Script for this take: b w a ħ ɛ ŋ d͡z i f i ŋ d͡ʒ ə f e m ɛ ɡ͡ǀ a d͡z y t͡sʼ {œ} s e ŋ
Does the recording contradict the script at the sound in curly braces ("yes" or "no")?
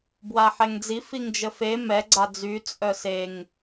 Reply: no